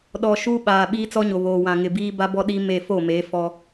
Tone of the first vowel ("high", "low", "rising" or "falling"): low